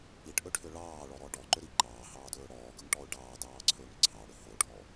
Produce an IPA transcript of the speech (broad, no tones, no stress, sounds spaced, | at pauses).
i ʈ ʔ ɵ ʈʰ ʏ ɭ ɑː ɭ ɔ ɾ ɔ ɖ ɔ ǃ ʏ ɾ i ǃ ɑː h ɑː d ɵː ɽ ɔː ɡ ɵ ŋ ʈ ɔ ʊ̯ ɖ ɑː d ɑː ǀʰ ɵː ŋ ǀʰ ɑ ɽ ʏ h o ʈʰ ɔ